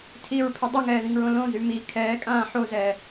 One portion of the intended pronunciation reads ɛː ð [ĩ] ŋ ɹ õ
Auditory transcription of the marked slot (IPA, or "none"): ĩ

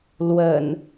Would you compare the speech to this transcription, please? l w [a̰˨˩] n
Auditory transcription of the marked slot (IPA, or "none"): ə̰˨˩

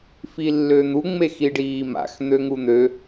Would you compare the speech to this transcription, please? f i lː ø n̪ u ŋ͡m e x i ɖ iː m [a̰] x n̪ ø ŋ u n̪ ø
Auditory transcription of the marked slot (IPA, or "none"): a̰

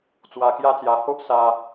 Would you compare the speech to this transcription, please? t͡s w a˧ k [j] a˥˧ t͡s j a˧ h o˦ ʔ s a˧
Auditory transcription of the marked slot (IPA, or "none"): j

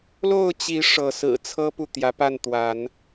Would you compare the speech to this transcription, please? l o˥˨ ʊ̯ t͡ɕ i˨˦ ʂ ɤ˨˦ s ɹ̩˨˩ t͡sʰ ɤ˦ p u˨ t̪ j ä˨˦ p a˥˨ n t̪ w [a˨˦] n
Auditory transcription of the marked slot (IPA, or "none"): a˨˦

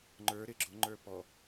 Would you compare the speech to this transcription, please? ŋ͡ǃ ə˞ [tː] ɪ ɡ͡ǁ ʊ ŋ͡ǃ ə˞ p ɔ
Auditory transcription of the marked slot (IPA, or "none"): ɾ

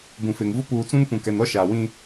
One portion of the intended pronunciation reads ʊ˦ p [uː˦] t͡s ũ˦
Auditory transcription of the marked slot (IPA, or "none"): uː˨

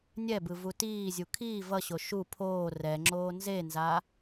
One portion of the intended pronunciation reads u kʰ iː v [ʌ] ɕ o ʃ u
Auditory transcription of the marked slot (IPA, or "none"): ʌ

